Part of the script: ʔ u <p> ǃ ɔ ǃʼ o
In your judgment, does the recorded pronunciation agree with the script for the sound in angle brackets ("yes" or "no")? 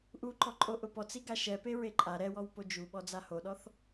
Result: no